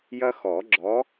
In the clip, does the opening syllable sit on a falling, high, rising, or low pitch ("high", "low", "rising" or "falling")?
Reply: high